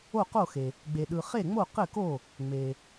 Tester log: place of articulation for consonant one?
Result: uvular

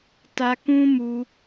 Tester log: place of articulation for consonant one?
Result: alveolar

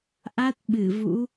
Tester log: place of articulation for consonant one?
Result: glottal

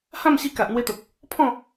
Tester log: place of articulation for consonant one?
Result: glottal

